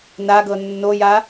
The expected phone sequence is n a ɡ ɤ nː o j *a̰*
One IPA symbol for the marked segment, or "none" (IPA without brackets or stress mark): a